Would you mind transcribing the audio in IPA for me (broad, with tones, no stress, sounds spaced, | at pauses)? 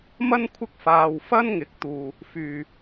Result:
m ɐ˥ n kʷʰ ɪ˥ k̚ f aː˧ w f ɐ˥ n ŋ ɪ˨˥ k̚ t̪ uː˨ | f yː˨